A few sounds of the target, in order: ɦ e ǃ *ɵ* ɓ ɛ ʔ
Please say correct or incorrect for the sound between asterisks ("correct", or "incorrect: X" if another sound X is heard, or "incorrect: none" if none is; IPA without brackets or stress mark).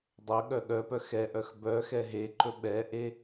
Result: correct